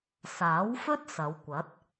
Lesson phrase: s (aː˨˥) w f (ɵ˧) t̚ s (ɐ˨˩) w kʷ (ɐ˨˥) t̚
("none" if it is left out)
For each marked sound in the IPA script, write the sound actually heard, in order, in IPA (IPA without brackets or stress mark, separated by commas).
aː˨˥, ɵ˥, ɐ˨˧, ɐ˨˥